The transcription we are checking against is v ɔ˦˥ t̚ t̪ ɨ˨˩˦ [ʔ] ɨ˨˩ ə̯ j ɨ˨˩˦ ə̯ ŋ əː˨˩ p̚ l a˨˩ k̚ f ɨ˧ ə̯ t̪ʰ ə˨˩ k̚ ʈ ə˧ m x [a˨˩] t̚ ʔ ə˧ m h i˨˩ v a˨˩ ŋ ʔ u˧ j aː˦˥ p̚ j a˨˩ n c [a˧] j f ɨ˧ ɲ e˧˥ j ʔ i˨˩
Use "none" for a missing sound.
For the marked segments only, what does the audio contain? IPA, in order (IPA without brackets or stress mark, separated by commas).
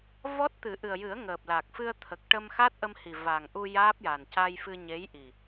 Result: ʔ, a˦˥, a˧